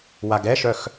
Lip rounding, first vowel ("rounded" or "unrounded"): unrounded